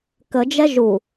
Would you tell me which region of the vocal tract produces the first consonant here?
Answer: velum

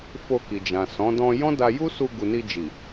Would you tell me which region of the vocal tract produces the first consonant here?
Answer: lips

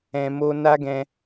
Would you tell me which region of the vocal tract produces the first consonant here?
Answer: lips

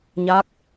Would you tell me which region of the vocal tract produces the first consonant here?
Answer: palate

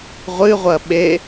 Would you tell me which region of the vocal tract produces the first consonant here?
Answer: uvula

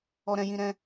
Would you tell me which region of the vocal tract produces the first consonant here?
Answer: tongue tip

